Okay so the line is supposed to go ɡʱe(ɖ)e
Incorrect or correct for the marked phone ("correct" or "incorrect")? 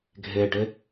correct